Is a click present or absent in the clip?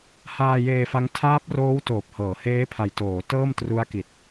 absent